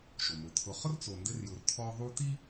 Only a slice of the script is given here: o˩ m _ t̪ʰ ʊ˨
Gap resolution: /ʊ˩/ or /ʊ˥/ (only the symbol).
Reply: ʊ˩